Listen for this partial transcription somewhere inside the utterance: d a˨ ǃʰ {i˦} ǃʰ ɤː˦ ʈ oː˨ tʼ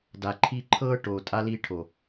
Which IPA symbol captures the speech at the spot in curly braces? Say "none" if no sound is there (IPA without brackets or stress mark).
i˦